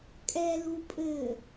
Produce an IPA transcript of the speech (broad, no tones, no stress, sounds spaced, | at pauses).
kʼ ɛ l u pʼ ɘ